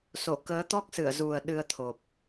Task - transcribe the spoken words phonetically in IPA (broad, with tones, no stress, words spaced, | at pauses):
so˧˩ kəː˨˦t̪ɔ˦˥k̚sɨ˧˩ə̯zu˨˩ə̯ ɗɨ˧ə̯t̪ʰo˨˩p̚